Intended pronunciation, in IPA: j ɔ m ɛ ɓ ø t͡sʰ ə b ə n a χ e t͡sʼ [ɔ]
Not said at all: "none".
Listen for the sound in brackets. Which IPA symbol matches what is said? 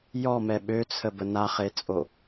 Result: o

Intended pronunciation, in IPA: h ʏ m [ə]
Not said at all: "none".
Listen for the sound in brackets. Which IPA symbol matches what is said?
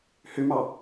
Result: ɑ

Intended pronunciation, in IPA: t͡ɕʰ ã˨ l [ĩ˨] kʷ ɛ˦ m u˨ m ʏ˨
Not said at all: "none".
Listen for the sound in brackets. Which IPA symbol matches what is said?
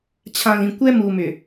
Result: ĩ˨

